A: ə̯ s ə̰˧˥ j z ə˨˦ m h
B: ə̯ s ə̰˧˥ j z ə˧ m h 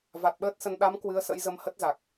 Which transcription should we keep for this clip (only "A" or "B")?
B